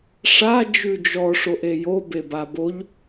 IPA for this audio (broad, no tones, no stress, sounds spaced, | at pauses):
ʂ a d͡ʒ ʉ d͡ʒ ɔ ʂ o ʔ e j o b e b a b o ʎ